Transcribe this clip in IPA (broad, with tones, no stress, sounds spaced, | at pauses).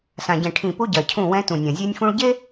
s ã˨ ɟ ɛ̃˨ ʈʰ ĩ˨ p u˦ ɟ ɜ˨ cʰ ũ˦˨ w ɛ̃˦ t ũ˨ nʲ ã˨ zʲ e˦ nʲ f ũ˦ ɭ ɟ e˦